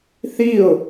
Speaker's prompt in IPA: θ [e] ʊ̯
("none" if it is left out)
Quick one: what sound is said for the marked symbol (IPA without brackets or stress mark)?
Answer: i